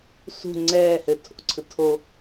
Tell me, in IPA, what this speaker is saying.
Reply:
sṳ ŋ͡ǀɛː hɘtʰo̰ǀʰɯ tʰo

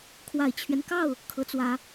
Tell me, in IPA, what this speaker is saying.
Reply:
kʰwa˨˩ɪ̯t͡ɕʰɥɛ˦n kɑ˥˩ʊ̯ | kʰɤ˧˥t͡swä˧˥

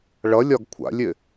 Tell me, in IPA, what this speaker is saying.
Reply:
ɭʌlʲɒɡ kʷʰa̰lʲɪ

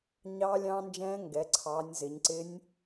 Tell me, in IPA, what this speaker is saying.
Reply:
ɲɑː˦˥lʲɑ̃ː˦˥nd͡ʒɛ̃ː˦˥ ŋɡɛ˨˦ǀʰɑ˨˦nʲ zɪ˨˦ɲǀɪ˦˥nʲ

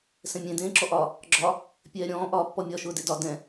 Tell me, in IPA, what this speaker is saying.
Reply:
sɛ̃mʲẽ dẽːǁɔʔɒ | ɡ͡ǁɒ | pʲɛːɾʲɔ̃ː ʔɒːpːɔmʲɒ ʃʊːdedɒ dɛ̃

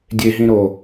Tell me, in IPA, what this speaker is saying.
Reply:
dʲeɦĩɾo

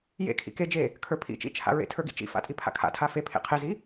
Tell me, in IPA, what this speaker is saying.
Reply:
jḛkʰḭ ked͡ʒe | kʰə˞pʰḭt͡ʃḭt͡ʃʰa̰ ɹḛtʰə˞ɡḭt͡ʃḭ fa̰tʼipʰa̰kʰa̰ tʰafe pʰḛqʰezi

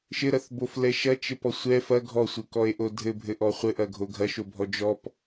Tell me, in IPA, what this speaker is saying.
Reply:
ʃɘɾɐθboflɛ ʃɐt͡ʃɘpɔ sʷɛ fɐ ɡʱɔsʷɘkɔe̯ʔo dʱɘbʱɘʔɔ χʷɘʔɐɡʱo ɡʱɐʃobʱɔ d͡ʒɔp

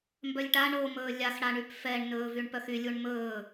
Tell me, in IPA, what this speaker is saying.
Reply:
mbœlʲʈa ɳomɵː lʲaxɽaɳyp fɛɳnɵː vyɳpœxylʲuɳ mɵː

